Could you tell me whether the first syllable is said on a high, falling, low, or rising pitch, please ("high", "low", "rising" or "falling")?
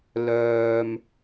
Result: low